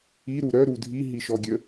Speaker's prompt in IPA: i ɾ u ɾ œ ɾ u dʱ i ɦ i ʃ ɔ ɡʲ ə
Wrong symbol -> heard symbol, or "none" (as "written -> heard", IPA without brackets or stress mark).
none